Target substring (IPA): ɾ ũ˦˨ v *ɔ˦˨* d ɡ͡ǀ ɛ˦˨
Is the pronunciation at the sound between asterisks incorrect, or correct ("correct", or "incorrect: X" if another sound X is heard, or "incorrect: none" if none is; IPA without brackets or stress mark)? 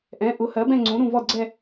correct